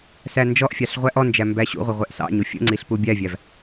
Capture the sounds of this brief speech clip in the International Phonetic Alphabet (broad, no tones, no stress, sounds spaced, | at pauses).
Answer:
s æ n d͡ʒ ɔ ʔ fʲ ɑ ɬ ʁʷ æ ʔ ɔ n d͡ʒ æ m b æ ɕ ṵ ʁʷ ə ʁʷ ɛ ʔ s ɑ̰ ɲ u fʲ ə̰ ŋ͡ǀ i ɬ p u bʲ æ vʲ æ v